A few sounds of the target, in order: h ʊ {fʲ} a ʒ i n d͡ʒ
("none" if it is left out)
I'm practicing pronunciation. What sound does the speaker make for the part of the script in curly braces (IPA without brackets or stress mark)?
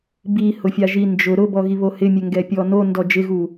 fʲ